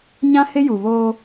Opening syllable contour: high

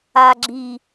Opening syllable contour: low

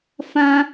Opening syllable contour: high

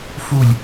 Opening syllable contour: falling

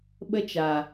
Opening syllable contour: high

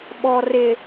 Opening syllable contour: low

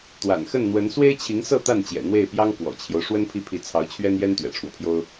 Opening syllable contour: low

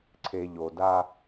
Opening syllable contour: low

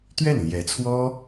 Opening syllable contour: falling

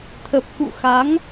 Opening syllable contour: low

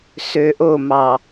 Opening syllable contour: low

